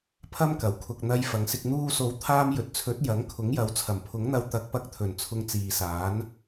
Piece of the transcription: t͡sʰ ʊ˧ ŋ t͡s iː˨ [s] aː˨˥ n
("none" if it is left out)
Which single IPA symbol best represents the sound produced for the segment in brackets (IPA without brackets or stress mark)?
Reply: s